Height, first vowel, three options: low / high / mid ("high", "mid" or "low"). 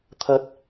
low